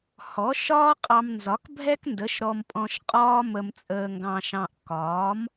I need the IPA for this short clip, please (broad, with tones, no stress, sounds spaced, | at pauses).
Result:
h ɔ˩˥ ʃ ɒː˥ qʼ ɑ˧ m n z ɒ˩˥ k bʱ ɛ˥ k n d ə˩˥ ʃ ɾ ɔ˧ m pʼ ɔ̃˧ ʃ qʼ ɒː˥ m ə˧ m t͡sʼ əː˧ ŋ ɡ ɑ̃˧ ʃ ɑ̃˧ ʔ k ɒː˩˥ m